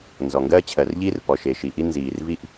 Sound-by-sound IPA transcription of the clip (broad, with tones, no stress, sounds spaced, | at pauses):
n z ɔ˩ ŋ ɡ ɜː˥ t͡ɕʰ ɜ˩ r ʎ iː˥ r p ɔ˩ ʃ e˩ ʃ i˩ ʔ i˥ n z iː˩ r v i˥ ʔ